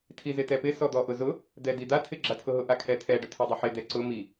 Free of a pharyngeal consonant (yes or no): no